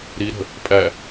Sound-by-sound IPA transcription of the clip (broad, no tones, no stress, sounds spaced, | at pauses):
ɾ i ɾ ə̤ | pʼ æ